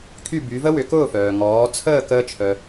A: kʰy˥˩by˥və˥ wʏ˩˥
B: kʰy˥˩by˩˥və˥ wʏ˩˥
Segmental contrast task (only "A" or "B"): B